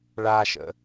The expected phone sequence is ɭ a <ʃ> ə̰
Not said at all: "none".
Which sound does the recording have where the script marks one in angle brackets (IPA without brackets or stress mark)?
ʃ